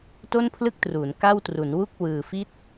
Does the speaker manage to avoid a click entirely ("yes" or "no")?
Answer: yes